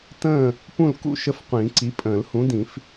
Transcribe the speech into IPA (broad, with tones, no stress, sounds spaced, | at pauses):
t ə̃ː˥˨ | p ũ˥˨ l k ṵ˥˨ ʃ ə˥˨ f qʷ ĩː˨˩˦ ǀ i˨˥ pʼ ə̃ː˨˩˦ l h ũ˨˥ d ĩ˨˩˦ f